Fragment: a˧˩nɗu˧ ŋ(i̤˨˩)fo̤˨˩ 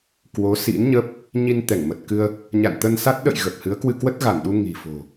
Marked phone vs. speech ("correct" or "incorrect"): correct